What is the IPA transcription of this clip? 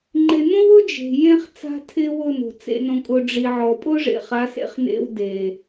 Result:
ŋ͡ǃɪ˨nõ˦wʊ˦ d͡ʒe̤˨jẽ˦χ t͡sa̤˦tʰɪː˦wʊː˦˨n o̤˨t͡sḛ˦nõ˦kʼʊ˦ ɖ͡ʐi˨ʕɔ˨ pʼʊː˦ʐḛ˨χa˨˦sḛ˦χ nḛ˦wde˨

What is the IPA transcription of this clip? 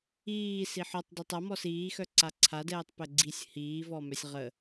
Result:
iː siħɔtˤ detˤa mɔsiːxœ ǀaǀʰadɛːtˤ pɛɡ͡ǀisʲ hiːvɔmœsʲ ʁə

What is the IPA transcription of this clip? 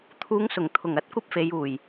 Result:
t̪ʰuː˨˧ŋsʊ˨˩ŋt̪ʰʊ˨˩ŋ ɐ˧t̚ kʷɐ˥p̚fe˨˧juː˨˩j

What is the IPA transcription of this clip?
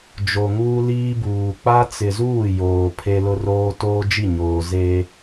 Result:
d͡ʒo˨ŋuː˦ liː˦buː˨ k͡pa˦t͡sɪ˨zuː˦˨ joː˨pʰe˦lʊ˦roː˦ toː˦d͡ʒi˦˨ɲoː˨ ze˦

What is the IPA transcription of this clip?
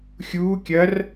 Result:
xʲuː kʲɐr

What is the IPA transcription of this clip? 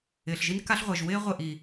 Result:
ɪː˨ɬʒi˦n ka˦ɬʁʷɛ˨ʒ wɪː˦ ʁʷɪ˦˨ ʔi˨

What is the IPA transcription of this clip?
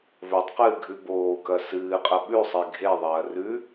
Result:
vɵtˤqɨːɡʱʉ boːkɐ sɨːqʼɐ ɓʉsˤe ɡʱeðˤɐː rʉ

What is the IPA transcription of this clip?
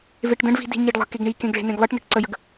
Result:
veʈdə̃ɖvi̤ di̤ɲeɖlˠə̤keɡ ɳikẽɡ ɭe̤nẽɡlˠɨʈnə̤ʈ ǀəjəɡ

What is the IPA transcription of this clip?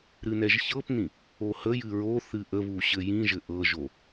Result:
ɾɨnɛʒçɤpnĩ | ohəj ɨɹo θɨʔəβuɕɘ jĩʒɘ ʔɤʒo

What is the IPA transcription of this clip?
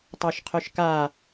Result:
tˤɛʃqʰœʃka

